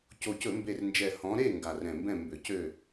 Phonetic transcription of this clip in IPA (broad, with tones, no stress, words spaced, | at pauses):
co˨˩cɵ˧˩˧mbe˨˩rnd͡ʒɛ˨˩ hɔ̃˨˦ɾe˥˨ ŋɡa˨˩rɛ̃˨˩mbɛ̃˥˨ mbʏ˧˩˧cø˥˨